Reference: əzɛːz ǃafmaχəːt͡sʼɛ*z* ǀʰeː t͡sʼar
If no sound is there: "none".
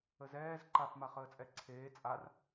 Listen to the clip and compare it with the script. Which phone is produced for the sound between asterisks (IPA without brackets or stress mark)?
none